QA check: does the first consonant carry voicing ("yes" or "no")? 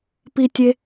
no